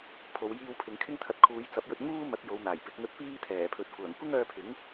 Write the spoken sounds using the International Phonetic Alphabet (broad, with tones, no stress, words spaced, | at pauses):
pʰo˨˧wjiː˧w pʰɪ˨˧ŋkʰɪ˥ŋt̪ʰɐ˧t̚ kʰuː˨˧jt͡sɐ˨˥p̚jɵ˧t̚ŋuː˥ mɐ˨˥t̚ jo˨˧wn̪aː˨˩jpɪ˨˥k̚ŋɵ˧t̚ piː˥t̪ʰɛː˨˩pʰɵ˨t̚ kʷœː˨˩ŋkʷɪ˥ŋœː˧pʰɪ˨˥ŋ